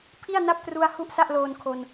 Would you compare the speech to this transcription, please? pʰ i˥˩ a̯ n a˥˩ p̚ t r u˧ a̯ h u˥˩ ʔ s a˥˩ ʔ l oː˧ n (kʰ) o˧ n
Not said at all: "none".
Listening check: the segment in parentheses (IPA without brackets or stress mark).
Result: kʰ